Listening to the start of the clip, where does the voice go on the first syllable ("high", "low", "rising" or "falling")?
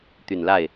low